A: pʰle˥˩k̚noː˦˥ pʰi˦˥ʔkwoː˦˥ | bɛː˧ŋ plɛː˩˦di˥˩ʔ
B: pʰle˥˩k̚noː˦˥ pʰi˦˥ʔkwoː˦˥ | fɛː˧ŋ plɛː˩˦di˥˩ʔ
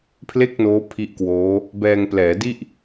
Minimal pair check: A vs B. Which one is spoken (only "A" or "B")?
A